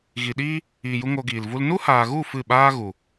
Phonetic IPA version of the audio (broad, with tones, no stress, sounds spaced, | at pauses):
ɣ i˨ ɗ iː˦ | iː˨ j u˧ ŋ o˧ ɡ iː˨ l v u˦ l n u˦ h aː˨ ɣ u˦˨ f ɨ˦˨ ɓ aː˦ ɣ u˨